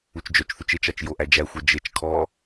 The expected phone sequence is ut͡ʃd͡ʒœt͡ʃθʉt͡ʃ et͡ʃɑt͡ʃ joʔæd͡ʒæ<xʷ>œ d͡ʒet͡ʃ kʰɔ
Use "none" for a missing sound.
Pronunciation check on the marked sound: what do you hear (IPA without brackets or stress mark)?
xʷ